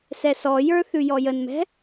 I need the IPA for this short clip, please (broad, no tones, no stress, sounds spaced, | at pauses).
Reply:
s ɛ s ɔ j ə˞ θ ʉ j ɔ j ə n m ɛ̤